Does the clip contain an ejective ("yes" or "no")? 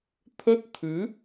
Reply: no